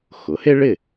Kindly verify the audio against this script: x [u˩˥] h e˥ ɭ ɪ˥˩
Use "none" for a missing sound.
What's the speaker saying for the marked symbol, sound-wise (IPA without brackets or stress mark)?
ʊ˩˥